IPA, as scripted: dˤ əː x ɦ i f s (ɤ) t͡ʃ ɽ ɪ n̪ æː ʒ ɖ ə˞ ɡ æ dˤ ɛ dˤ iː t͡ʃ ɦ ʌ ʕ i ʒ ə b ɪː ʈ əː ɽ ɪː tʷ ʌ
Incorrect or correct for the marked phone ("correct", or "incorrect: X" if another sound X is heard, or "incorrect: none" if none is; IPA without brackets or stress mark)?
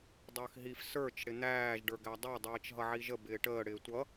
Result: incorrect: ə˞